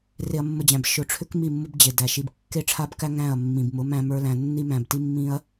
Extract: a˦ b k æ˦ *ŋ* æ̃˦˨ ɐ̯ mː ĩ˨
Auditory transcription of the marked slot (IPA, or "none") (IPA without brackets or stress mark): ŋ